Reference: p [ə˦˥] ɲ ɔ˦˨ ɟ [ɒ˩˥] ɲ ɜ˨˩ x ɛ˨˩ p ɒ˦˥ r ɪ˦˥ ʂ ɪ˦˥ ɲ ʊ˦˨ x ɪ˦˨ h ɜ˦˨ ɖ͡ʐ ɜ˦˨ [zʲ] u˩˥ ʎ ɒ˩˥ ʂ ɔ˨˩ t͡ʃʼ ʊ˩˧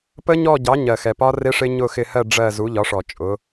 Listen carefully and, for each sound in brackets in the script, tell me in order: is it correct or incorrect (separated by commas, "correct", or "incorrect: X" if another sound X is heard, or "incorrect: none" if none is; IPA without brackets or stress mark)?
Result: correct, incorrect: ɑ˩˥, incorrect: z